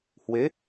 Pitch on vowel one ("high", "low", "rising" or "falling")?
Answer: rising